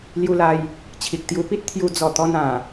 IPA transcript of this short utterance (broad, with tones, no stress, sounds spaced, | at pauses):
l j u˧ l a˧ j | t͡ɕʰ i˨ k̚ t̪ j u˧ p i˦ t̚ t̪ʰ j u˧ d͡z ɔ˨˩ t̪ ɔ˧ n ã˨˩